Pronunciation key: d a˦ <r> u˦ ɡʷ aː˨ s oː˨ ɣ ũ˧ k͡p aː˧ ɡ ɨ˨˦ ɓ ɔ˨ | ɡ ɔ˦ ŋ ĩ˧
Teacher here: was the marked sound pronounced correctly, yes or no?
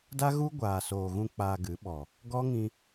no